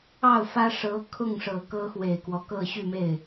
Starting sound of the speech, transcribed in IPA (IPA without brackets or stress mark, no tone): ɑ